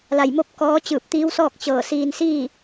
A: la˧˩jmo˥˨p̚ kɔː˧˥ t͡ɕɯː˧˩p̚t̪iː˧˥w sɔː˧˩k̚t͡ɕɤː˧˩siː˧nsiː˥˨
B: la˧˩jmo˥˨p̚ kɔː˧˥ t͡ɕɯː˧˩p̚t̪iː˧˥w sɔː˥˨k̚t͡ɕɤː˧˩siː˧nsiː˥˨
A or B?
B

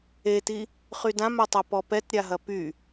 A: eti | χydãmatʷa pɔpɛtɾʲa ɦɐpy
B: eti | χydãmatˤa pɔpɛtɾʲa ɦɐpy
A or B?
B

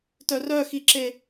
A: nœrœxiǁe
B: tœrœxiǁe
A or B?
B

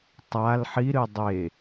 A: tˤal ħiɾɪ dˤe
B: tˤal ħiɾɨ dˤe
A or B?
B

